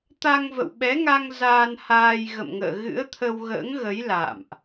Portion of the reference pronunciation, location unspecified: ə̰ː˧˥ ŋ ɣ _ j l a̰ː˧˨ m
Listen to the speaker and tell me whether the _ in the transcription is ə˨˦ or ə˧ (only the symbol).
ə˨˦